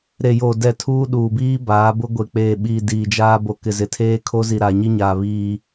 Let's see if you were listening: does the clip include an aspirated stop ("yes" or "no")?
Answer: yes